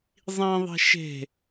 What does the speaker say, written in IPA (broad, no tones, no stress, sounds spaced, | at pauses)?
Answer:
zˤ ĩ ðˤ e̤ ʃ e̤